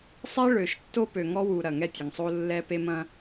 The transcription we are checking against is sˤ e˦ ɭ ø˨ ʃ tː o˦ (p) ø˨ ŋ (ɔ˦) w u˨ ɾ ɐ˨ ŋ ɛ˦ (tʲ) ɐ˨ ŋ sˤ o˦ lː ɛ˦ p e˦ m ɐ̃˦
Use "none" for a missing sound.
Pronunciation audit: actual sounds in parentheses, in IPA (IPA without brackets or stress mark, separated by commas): p, ɔ˦, tʲ